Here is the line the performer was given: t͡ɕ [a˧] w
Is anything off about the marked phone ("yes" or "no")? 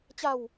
no